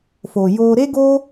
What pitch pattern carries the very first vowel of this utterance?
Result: low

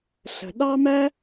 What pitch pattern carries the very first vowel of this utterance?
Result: low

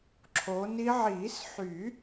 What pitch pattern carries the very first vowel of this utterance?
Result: rising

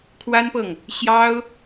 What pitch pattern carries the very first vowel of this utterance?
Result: high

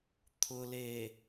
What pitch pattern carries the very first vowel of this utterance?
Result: low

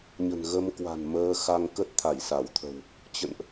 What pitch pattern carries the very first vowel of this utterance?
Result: low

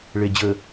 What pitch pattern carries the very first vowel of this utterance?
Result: low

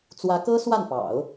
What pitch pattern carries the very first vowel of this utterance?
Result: rising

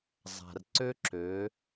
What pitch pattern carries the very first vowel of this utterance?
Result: low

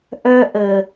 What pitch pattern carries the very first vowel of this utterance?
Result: high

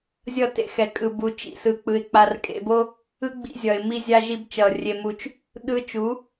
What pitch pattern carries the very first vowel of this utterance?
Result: falling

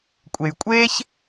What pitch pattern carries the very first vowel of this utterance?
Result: low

